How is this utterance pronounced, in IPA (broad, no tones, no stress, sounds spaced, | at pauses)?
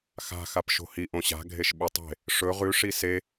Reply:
x a̤ x a p ʃ o̤ h i ʔ õ ɕ a̤ ɡʱ e ʃ ɓ u tˤ e̤ | ʂ ɵ ʁ ʉ ʂ i s e